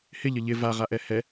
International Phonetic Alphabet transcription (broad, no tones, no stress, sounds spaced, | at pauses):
h ɪ ʎ ə ʎ ɪ v a ʁ a ʔ ɛ h ɛ